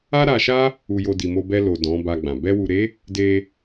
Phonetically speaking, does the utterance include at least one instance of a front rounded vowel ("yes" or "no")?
no